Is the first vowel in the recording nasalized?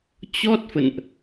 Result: no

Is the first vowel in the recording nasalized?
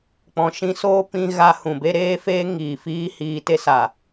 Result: yes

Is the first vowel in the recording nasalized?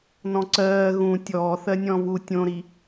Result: yes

